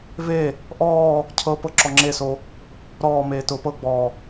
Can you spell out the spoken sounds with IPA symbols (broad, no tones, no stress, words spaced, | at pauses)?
ve | ʔɔː | cʰɤ pɤǁɔŋ͡ǁeso | ɾɔː meːtʊːpɤɡ͡bɔː